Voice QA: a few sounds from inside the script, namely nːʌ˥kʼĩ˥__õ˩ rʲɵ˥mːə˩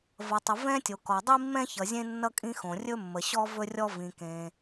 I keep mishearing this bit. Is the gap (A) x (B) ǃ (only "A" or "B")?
A